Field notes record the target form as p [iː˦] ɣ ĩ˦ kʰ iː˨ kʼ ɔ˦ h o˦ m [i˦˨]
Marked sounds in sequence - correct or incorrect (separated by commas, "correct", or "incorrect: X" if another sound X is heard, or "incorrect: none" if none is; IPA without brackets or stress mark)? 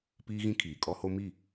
correct, correct